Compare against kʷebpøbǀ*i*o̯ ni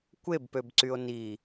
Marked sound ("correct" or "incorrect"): incorrect